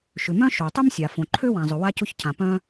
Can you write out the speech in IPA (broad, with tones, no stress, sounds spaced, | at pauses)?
ʃ ʏ˩ m œ̃˥ ʃ o˩ tˤ ʊ˥ m sʲ a˩ f õ˩ ǃʰ ø˥ w ã˩ zˤ ʏ˩ w a˥ c ʊ˥ ç cʰ ã˩ p œ̃˥